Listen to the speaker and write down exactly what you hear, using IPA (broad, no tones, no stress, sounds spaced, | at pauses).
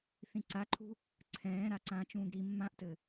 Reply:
θ ĩ ǀ a ǃʰ ṳ | ǀʰ ɛ̃ː ɾ a ǀ ã t͡ʃ ũː ɡ ɾ i mː ã ʔ t ɘ